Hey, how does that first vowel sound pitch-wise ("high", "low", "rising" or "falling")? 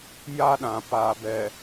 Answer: high